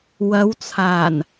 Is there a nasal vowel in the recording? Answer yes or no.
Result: no